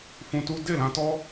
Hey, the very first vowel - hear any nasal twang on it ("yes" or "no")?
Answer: yes